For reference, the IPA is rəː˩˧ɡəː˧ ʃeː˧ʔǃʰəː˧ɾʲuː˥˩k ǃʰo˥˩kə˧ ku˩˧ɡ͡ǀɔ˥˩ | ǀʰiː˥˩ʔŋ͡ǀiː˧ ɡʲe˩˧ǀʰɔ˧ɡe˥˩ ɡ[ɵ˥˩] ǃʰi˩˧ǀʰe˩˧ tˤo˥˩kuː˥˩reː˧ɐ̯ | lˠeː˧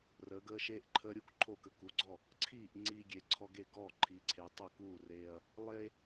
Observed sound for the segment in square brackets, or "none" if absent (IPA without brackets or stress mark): ɔ˥˩